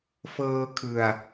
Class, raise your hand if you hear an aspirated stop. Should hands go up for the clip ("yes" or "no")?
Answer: yes